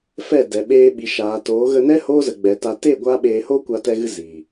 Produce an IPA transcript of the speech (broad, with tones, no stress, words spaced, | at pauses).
fɛ˦˨dɛ˨ ɓeː˧ɓi˨ʃaː˨toː˨˦ ɣə˧nɛ˦ hoː˦ zə˨ɡ͡bɛ˨ta˧ te˦˨ ɡʷa˦ɓeː˧ ho˦kʷa˧tɛ˧ɣɨ˧ ziː˨